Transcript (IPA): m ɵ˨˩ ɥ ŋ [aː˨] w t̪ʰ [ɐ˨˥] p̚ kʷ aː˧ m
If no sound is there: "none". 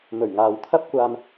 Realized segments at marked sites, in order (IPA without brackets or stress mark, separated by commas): aː˨, ɐ˥